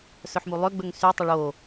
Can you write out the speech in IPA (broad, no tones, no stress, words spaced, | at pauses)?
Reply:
sœħmulˠø ɡ͡bɵŋsy tˤɵɭo